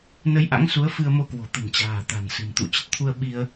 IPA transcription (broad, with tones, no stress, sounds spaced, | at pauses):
n ə˧ j ʔ a̰˧˥ ŋ s u˨˦ ə̯ f ɨ˧ ə̯ m o˧ k w o̤˨˩ t̪ ə̤˨˩ n t͡ɕ a̤ː˨˩ t̪ a̤˨˩ n s ɨ̤˨˩ m t̪ ṵ˧˨ t͡ɕ ə˨˩ t̚ t̪ʰ u˧ ə̯ ɓ i˧ ə̯